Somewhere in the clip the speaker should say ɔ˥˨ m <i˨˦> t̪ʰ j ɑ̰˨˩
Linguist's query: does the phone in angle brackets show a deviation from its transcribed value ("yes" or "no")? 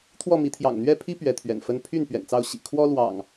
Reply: no